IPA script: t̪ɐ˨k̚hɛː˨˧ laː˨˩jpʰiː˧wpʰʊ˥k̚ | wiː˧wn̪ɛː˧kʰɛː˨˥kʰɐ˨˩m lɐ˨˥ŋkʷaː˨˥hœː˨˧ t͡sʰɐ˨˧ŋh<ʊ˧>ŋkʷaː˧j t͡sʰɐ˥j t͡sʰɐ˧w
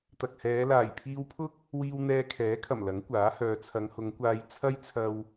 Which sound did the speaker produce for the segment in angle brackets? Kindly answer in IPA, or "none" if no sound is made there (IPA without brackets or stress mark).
ʊ˨˧